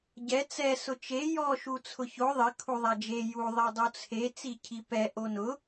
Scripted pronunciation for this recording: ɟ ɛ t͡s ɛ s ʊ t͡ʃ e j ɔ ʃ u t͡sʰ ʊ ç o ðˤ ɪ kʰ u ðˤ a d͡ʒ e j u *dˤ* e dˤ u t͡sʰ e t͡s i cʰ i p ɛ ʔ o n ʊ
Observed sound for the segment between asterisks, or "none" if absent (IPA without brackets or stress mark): ðˤ